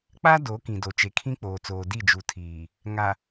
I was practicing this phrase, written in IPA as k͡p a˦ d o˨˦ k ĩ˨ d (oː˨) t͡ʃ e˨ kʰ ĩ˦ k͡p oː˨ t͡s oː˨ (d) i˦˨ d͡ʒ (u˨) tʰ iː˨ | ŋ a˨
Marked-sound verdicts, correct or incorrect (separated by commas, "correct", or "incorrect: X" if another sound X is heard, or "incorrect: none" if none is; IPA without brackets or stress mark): incorrect: o˨, correct, correct